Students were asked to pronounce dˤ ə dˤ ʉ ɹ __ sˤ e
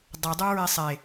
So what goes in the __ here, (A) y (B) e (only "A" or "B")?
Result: B